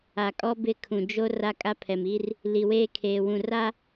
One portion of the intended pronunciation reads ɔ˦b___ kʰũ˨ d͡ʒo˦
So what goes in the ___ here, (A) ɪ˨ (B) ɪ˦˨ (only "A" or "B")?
B